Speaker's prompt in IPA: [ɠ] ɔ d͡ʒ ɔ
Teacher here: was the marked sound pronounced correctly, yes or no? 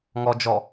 no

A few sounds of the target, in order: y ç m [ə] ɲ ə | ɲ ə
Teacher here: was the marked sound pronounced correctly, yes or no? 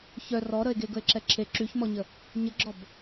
no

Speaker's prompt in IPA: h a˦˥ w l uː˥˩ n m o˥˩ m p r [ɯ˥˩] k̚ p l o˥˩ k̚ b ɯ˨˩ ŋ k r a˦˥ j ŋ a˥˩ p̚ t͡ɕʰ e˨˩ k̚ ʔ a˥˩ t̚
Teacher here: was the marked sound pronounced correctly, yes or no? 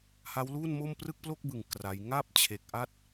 yes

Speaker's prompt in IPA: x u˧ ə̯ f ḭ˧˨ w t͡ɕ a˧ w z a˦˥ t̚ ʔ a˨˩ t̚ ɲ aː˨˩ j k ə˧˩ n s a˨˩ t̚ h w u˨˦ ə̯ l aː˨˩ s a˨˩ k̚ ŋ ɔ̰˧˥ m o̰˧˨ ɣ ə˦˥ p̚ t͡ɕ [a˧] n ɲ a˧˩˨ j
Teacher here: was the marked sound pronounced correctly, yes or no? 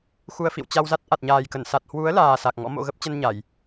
no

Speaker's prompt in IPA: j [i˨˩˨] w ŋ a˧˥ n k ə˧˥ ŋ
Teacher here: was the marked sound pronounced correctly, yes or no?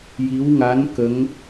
no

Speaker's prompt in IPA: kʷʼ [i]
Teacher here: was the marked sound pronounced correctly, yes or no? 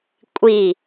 yes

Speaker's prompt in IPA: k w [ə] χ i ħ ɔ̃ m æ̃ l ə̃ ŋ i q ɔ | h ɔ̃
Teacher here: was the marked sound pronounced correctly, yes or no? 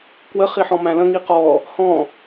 yes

